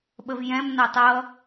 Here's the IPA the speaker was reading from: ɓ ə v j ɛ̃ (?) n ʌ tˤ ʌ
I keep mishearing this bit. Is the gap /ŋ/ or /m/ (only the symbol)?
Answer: m